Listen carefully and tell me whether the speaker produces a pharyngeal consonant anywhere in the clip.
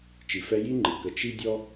no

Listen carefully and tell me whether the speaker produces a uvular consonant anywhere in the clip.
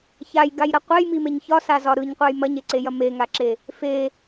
yes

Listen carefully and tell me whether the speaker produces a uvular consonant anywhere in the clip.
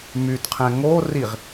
yes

